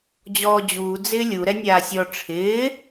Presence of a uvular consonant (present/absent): absent